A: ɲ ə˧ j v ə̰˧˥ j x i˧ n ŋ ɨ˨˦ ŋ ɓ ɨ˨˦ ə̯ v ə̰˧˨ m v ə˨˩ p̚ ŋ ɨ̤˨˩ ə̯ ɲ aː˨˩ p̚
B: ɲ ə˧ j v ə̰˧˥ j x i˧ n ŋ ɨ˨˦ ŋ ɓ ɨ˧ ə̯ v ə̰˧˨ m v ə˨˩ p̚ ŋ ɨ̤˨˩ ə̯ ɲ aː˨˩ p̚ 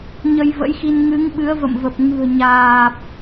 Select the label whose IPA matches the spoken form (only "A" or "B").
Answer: A